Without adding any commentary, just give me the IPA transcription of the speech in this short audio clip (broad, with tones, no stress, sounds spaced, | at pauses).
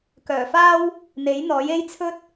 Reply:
k œː˨˩ f aː˥ w | n̪ e˨˥ j n̪ ɔː˨˥ j e˥ j t͡sʰ ɵ˥ t̚